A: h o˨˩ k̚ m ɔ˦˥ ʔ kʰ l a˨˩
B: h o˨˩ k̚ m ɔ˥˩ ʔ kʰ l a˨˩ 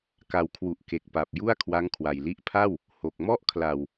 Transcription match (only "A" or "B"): B